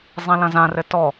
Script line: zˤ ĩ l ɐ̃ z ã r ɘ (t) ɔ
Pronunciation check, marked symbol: correct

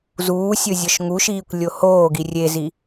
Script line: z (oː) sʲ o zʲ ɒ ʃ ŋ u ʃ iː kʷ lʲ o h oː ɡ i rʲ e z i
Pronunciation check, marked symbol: incorrect: uː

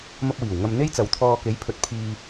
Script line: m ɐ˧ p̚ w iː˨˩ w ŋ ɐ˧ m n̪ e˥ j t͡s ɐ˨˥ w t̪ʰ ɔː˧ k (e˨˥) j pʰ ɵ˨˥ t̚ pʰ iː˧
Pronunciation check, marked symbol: correct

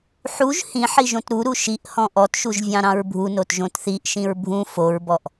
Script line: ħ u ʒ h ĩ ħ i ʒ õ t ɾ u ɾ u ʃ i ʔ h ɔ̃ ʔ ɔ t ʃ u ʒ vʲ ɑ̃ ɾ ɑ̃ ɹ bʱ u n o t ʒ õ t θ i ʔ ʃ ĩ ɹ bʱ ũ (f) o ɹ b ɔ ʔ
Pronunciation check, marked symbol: correct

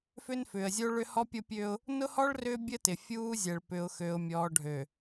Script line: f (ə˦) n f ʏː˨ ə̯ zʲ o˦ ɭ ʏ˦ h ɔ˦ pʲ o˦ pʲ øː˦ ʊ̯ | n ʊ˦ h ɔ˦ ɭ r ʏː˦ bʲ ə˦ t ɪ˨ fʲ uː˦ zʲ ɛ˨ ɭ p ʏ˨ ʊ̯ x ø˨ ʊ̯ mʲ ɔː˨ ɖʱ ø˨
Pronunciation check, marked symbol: incorrect: ʏ˦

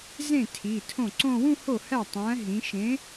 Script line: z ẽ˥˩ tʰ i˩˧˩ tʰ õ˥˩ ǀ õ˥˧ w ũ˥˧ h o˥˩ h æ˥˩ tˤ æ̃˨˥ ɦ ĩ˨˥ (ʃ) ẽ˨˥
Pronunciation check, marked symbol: correct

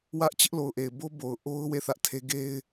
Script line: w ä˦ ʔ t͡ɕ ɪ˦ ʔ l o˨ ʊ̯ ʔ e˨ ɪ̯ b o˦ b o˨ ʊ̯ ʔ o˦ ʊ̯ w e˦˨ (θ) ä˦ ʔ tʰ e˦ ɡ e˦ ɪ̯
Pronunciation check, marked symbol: correct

